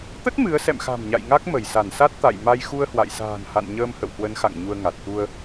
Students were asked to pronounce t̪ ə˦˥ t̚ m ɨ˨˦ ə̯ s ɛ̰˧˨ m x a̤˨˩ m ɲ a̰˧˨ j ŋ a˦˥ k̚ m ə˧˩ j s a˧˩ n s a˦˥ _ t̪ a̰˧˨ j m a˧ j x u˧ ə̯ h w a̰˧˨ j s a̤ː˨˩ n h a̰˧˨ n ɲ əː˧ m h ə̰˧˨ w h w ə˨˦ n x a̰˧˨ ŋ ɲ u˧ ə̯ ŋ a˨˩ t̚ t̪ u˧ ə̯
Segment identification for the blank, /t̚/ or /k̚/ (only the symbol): t̚